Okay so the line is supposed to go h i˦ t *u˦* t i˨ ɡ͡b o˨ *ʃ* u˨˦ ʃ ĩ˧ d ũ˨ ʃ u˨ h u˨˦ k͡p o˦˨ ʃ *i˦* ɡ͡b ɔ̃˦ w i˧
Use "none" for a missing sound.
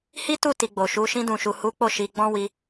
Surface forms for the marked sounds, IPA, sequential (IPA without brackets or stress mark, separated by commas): u˦˨, ʃ, i˧